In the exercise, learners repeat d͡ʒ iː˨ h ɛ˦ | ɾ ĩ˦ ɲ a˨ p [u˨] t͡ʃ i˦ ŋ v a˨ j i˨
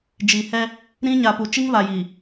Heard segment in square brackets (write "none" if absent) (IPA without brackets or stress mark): u˨